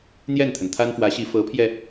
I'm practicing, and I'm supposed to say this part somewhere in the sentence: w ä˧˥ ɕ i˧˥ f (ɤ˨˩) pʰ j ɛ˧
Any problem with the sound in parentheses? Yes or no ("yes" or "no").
yes